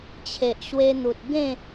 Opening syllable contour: low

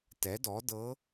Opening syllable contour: rising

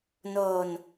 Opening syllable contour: low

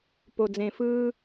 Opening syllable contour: low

